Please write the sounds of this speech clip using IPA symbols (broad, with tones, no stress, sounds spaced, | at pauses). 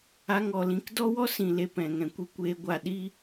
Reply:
a˧ ŋ ɔ˨ l ĩ˨˦ k d ɔ˦ w ɔ˦ s ĩ˨ l e˨ p ɛ̃˨ ŋ ɛ̃˨ kʷ i˧ kʷ eː˧ ɡʷ a˦˨ ɗ i˦